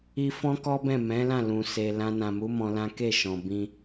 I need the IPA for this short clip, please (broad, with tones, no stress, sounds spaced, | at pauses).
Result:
i˧ f ɔ̃˦ k ɔ˦ b ɛ̃˦˨ m ɛ̃˨˦ l ã˦˨ l ũ˨ s e˨ l ã˧ n ã˨ m u˨˦ m ɔ̃˧ l ã˦ k e˦˨ ʃ ɔ̃˨ b ĩ˧